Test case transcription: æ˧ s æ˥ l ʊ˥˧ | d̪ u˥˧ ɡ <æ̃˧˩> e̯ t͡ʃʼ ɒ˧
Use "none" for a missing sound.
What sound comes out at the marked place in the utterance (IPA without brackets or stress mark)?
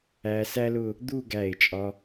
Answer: æ˧˩